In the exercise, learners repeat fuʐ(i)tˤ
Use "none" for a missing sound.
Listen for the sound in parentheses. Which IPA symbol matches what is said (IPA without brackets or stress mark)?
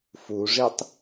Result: i